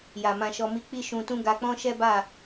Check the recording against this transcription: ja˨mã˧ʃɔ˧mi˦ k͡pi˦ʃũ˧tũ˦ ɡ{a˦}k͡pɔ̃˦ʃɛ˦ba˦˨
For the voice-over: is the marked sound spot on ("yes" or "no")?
no